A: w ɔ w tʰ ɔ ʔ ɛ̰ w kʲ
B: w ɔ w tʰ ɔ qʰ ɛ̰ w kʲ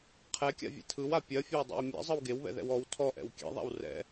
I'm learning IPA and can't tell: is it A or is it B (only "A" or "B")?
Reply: A